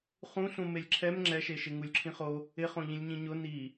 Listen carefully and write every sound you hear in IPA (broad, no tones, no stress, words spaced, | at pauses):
χũɬũ melʲǁʰɛm ŋ͡ǁɛʃeʃɪ ŋulʲǁʰĩχo | ɪχõ ʎĩlʲɲĩɲʊ ni